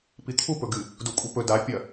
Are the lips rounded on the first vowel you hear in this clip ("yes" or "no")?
no